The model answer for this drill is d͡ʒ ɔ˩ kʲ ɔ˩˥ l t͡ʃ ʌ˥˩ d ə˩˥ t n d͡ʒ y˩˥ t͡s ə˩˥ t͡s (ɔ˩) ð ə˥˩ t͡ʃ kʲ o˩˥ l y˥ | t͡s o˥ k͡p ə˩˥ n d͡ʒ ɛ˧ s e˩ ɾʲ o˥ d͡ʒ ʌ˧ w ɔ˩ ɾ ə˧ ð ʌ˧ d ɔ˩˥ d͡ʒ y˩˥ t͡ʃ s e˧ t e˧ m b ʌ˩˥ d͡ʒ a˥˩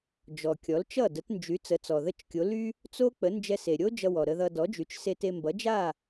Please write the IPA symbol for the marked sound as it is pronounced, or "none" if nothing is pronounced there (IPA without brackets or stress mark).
ɔ˩